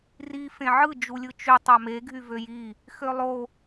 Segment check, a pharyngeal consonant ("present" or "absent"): present